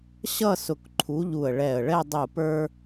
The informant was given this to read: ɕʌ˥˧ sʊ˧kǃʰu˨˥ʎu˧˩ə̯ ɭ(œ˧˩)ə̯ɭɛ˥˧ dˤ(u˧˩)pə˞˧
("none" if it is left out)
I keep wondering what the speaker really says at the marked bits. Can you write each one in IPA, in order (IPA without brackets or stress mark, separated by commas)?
ɛ˧˩, u˧˩